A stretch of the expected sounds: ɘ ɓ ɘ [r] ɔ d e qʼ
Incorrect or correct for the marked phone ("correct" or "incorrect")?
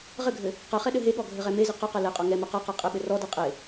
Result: correct